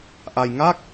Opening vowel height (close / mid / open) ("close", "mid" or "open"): open